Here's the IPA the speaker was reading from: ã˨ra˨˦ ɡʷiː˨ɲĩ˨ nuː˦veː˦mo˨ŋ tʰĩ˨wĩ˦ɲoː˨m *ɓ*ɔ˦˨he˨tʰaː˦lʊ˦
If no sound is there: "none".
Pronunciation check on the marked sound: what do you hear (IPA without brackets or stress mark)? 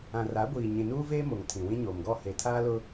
ɡ